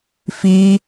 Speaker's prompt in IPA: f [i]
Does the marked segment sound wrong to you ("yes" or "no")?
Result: no